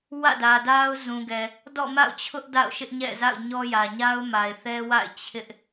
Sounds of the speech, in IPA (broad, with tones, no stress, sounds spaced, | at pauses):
w ä̰˦˨ d ä˨ d a˦ ʊ̯ z ũ˨ ɡ ɛ˨ | d ɔ̰˦˨ m a̰˦˨ ʊ̯ t͡ɕʰ ʊ˦ ʔ d a̰˦˨ ʊ̯ ʃ ɪ˦ ʔ ɲ ɛ̰˦˨ z a̰˦˨ ʊ̯ ɲ ɔ˦ j ä˨ ɲ a˦ ʊ̯ m a˨ ɪ̯ θ ɛ˦ w a̰˦˨ ɪ̯ t͡ɕʰ ɪ˦ ʔ